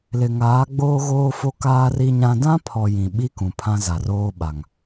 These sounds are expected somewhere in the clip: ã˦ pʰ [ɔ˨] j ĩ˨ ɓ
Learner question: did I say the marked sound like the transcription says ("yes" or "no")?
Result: yes